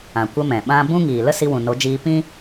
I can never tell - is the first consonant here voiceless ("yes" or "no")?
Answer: yes